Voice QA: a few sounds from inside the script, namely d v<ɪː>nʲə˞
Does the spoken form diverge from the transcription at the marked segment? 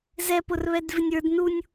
yes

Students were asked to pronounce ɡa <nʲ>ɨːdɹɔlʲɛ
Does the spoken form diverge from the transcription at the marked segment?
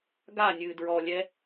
no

